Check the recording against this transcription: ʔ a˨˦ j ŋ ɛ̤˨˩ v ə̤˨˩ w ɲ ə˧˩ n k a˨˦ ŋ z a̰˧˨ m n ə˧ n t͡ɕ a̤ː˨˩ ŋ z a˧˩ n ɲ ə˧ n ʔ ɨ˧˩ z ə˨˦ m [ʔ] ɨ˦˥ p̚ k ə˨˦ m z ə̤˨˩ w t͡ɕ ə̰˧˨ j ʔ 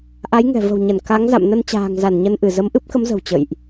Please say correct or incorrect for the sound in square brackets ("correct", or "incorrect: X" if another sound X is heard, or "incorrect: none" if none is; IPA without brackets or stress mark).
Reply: correct